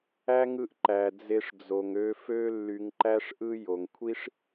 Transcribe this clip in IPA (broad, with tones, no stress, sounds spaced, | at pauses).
æ˥ ŋ ɯ˦ ʔ ǃ æ˨ d͡z e˦ ʂ d͡z o˨ ŋ ø˦ f ø˥ lː y˨ ŋ ǃ æ˦ ʂ ʔ ɯ˦ j o˩ ŋ kʷʰ i˥ ʂ